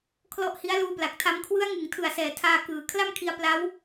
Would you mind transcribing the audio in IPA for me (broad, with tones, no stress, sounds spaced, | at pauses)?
kʰ l ɔ˦˥ ʔ h i˦˥ a̯ l uː˧ p l a˨˩ k̚ tʰ a˦˥ m kʰ w ɯ˦˥ a̯ ŋ ɯ˩˦ ŋ tʰ ɯ˨˩ a̯ s ɛː˩˦ tʰ aː˧ k ɯː˨˩ kʰ l a˥˩ m kʰ i˧ a̯ p l a˦˥ w